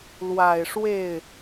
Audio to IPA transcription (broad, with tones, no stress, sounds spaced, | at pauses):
l w a˨˩ ɪ̯ ʂ w e˥˩ ɪ̯